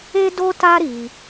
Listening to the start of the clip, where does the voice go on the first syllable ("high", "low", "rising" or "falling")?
high